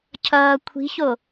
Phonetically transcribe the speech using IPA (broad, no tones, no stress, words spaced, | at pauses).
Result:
cʰʌː kʷʰi̤ço